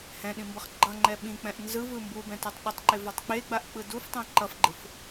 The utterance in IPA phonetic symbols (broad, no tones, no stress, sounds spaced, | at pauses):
h ɛ̃ ɗ ĩ m b ʌ χ ɡ͡ǃ ʌ ŋ͡ǃ ɛ ɓ ĩ k͡p ɛ̃ ʔ n z ɯ v ɯ m b u b ɛ̃ t ʌ tˤ ɗ u tˤ ǃ e v a tˤ k͡p e ɡ͡b a ʔ k͡p ɯ d u f tˤ ɛ̃ ǃ ʌ f ɡ͡ǃ ɯ f